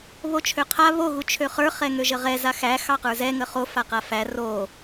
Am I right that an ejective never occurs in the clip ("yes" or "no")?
yes